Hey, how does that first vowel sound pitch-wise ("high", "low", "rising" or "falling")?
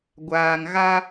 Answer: low